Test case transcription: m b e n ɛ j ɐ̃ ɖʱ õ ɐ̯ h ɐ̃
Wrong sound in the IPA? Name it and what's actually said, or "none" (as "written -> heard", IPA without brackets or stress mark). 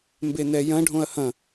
none